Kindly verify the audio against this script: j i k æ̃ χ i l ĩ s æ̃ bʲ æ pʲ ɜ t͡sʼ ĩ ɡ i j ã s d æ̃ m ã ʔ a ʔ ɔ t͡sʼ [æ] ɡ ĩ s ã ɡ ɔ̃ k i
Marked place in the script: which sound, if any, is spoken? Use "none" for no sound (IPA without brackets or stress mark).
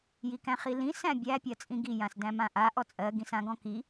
ɜ